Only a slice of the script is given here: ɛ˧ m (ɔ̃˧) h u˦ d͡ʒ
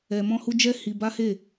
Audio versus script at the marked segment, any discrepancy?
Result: yes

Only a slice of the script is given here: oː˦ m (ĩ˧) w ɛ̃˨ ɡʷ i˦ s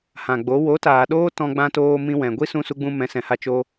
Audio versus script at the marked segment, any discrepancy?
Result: no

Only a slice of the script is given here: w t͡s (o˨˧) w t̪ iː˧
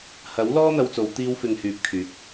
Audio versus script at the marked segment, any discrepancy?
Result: no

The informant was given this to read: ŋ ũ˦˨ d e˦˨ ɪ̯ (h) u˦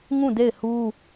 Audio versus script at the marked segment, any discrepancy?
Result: no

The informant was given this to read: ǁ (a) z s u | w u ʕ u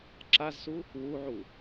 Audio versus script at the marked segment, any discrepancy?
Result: no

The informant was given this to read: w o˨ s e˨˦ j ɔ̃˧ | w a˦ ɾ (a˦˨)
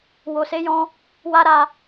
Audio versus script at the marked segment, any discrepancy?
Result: no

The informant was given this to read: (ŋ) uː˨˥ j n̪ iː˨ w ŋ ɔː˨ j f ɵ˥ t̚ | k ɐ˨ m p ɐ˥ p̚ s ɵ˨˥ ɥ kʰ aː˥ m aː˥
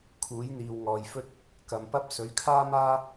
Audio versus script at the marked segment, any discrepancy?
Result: yes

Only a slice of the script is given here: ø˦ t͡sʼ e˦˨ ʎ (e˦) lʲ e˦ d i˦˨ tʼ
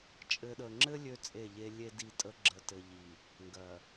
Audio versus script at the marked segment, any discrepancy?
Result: no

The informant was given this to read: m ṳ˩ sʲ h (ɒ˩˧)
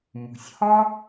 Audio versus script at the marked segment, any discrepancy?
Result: yes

